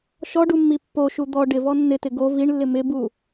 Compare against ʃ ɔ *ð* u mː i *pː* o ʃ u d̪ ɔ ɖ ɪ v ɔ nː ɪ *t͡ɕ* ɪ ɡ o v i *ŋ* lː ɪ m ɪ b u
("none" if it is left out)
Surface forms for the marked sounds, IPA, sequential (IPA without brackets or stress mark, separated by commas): ɖ, pː, t, ɳ